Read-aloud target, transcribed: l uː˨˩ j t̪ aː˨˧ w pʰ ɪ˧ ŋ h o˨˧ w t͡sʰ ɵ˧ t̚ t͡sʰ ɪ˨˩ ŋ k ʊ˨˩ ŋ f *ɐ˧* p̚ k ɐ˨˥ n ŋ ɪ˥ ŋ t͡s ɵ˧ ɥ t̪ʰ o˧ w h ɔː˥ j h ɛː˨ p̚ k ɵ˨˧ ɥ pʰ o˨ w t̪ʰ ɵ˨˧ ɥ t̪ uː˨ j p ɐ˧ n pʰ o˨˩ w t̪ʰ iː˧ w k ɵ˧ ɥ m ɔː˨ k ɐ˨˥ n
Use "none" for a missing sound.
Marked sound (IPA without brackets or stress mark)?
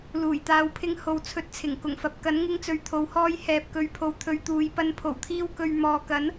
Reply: ɐ˨